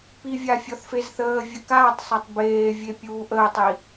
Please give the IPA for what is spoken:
p i vʲ a fʲ ɔ θ f e z θ əː vʲ ə k aː tˤ sˤ a tˤ b eː vʲ e pʲ uː ʔ əː tˤ i

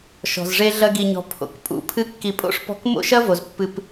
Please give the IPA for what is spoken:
ʃ ɔ̤˩ z ʐ e˦ ɮ ɐ˦ ɡ i˨ ɲ ɔ̤˨ pʰ o̰˩ k pʼ ṵ˦ pʰ ɨ˦ kː i˨ pʼ o̰˥ ʂ p ɔ̤˦ k m o̰˥ ʃ ɐ˥ v o˩ z pː ɨ˨ p

